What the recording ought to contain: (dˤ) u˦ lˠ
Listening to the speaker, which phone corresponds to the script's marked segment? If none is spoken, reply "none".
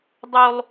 dˤ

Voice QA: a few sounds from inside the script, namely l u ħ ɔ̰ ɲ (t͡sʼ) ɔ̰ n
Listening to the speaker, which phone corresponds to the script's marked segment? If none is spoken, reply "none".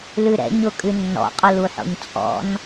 t͡sʼ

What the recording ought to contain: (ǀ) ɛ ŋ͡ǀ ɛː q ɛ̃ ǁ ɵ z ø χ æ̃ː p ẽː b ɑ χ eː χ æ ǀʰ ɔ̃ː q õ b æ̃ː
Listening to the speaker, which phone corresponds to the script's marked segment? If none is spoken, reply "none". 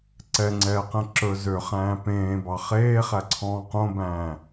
ǀ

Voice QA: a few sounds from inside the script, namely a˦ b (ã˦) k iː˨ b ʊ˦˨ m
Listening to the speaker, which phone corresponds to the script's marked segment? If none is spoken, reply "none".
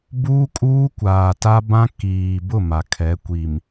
ã˦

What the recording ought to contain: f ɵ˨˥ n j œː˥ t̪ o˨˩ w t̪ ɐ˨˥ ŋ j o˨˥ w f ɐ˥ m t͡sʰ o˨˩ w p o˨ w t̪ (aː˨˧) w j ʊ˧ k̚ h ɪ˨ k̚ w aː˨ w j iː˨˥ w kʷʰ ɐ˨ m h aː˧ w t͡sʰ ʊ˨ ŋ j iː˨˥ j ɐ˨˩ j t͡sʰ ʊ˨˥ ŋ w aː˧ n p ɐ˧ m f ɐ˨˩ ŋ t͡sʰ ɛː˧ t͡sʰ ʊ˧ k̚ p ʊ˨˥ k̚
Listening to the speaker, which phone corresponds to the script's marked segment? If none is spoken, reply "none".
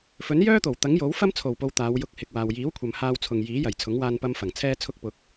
aː˨˧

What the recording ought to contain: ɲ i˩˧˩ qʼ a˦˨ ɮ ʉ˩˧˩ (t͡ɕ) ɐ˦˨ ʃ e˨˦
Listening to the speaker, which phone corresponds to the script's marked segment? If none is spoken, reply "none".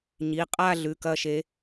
k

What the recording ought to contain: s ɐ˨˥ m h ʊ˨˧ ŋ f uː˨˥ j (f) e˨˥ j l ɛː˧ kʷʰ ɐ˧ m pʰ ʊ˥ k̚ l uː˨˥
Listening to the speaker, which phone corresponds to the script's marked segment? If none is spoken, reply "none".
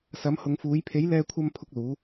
pʰ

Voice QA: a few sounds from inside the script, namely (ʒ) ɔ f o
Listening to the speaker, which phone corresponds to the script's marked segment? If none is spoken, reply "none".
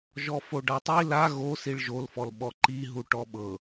ʒ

